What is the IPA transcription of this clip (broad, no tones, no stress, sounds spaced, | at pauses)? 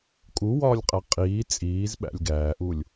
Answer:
kʼ u w ɒː lʲ qʼ æ qʼ iː t͡sʼ iː z ɓ æ̰ lʲ ɡ æː ʔ u lʲ